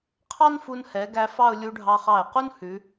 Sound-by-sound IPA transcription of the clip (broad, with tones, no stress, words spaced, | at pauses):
qʰɑ˥nfu˧nhɛ˩˧ ɡæ˧fɑ˥˧ʊ̯ lʲu˧ɖʱɑ˧χɑ˧˩ɪ̯qu˥n hʉ˩˧